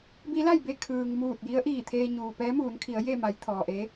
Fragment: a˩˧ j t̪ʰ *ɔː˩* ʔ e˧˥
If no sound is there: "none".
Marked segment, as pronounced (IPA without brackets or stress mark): ɔː˩